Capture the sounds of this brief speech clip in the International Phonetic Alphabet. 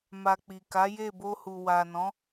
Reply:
m a˧ k͡p i˨ k a˨˦ j e˦˨ b o˧ h u˨ w a˨ n ɔ̃˨˦

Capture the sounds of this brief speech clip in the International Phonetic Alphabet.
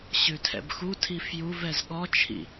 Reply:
ɕ ʉ tʰ ɛ̰ b x u tʰ i f j u v ɛ z ɠ ɔ t͡ʃʰ ḭ

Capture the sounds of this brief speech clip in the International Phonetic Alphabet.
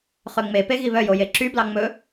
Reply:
χ ø ŋ͡m e p e ɣ i β œ j o j e ǁ y b l ɑ ŋ͡m ɵ

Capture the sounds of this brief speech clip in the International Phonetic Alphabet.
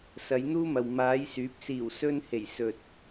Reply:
s ɐ˨˧ j n̪ uː˥ m ɐ˨ w m aː˨˧ j s yː˨˥ p̚ s iː˨˩ w s ɵ˥ n h e˨˩ j s ɵ˨ t̚

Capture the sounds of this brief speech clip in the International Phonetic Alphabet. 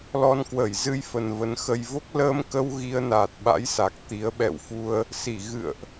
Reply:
l ɔ˧ n k w ə˧˩ j z ɨ˧ j f ə˨˩ n v ə˨˦ n x ə˧ j v o˦˥ k̚ l əː˧ m k ə˧ w ɣ i˧ ə̯ n aː˨˩ t̚ ɓ a̰˧˥ j s a˨˩ k̚ t̪ i˨˦ ə̯ ɓ ɛ̰˧˨ w f u˧ ə̯ | s i˧˩ ɣ ɨ̰˧˨ ə̯ ʔ

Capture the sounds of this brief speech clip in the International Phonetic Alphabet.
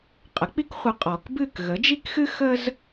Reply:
qʼ ə˩˥ k͡p i˥ k χʷ ə˧ qʼ ɔ˩ k b ɨ˥˩ k ɣ ə˩˥ d͡ʒ i˥ k x ɨ˥ x ə˥ z

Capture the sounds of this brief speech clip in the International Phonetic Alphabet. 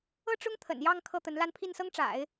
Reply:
ɤ˥ ʈ͡ʂ ʊ˥ ŋ t̪ʰ ə̰˨˩ n j ɑ˥˧ ŋ kʰ ɤ˥˩ t̪ ə˧˥ n l a˥˧ n pʰ i˥˩ n s ɤ˥ ŋ ʈ͡ʂ a̰˨˩˦ ɪ̯

